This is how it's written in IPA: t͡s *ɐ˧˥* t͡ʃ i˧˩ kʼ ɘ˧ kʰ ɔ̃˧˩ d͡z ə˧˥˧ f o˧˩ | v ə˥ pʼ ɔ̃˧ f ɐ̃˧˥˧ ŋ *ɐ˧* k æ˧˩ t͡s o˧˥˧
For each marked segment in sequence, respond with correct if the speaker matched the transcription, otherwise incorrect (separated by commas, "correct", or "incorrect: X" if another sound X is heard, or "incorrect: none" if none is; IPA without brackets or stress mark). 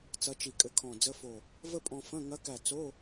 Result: correct, incorrect: ɐ˧˥